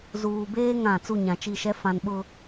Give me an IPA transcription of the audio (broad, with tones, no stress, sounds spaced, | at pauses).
z uː˨ b eː˦ ŋ ã˦˨ t͡s u˦˨ ɲ ã˨ t͡ʃ i˦˨ ʃ ɛ˦ f ã˨ n ɓ ʊ˨